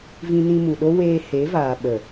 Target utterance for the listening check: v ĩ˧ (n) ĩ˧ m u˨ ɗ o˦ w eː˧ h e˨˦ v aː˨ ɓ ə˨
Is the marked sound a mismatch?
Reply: no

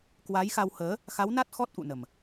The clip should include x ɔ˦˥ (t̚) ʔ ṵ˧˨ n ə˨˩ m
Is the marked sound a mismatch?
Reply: no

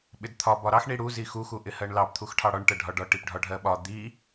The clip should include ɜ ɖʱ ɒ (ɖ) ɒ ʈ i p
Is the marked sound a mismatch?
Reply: no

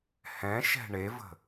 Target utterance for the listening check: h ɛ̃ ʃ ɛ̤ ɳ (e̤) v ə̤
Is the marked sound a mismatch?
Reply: yes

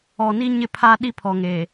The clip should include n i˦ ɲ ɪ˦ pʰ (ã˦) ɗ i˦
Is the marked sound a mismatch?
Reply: yes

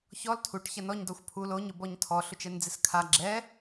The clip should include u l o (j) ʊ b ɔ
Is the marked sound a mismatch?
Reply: yes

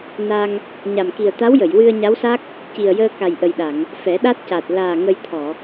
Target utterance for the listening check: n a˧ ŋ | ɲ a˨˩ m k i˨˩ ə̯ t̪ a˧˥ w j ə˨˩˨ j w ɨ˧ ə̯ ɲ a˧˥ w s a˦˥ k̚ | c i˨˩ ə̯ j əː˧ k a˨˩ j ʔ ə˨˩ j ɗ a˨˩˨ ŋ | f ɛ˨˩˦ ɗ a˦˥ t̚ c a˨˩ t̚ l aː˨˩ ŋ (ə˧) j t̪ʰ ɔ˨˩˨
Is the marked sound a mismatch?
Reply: no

